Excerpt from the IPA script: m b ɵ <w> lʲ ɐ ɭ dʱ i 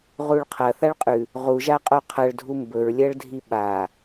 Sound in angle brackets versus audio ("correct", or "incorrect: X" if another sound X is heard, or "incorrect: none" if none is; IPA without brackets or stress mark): incorrect: ɹ